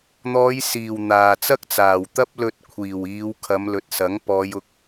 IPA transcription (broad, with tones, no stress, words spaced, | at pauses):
n̪ɔː˨˧jsiː˨˩w n̪aː˨˩t͡sɐ˥k̚t͡saː˨˩w t̪ɐ˥p̚lɵ˧t̚ kʷʰiː˨˩wiː˨˧w kʰɐ˨˧mlɵ˨t̚sɐ˨˥ŋ pɔː˨˧jʊ˨˥k̚